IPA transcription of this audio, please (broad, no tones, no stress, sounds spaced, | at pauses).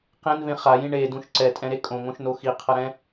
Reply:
q ẽ n v ẽ χ a j ĩ ɳ e d ũ ʃ ǀ ɛ tʼ ɛ̃ ɾ e kʼ õ ŋ õ ʃ n o x i qʰ ʌ ɾ ɛ̃